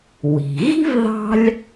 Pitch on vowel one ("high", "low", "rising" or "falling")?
low